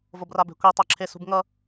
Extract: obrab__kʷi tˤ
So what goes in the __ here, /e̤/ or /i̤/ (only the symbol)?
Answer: e̤